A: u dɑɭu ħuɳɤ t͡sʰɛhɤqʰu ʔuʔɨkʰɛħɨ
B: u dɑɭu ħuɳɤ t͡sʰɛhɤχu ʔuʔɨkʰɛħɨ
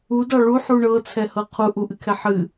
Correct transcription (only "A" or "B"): A